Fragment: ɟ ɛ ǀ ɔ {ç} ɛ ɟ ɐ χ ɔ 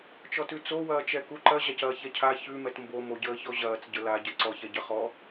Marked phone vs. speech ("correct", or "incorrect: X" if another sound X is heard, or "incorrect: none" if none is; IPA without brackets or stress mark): correct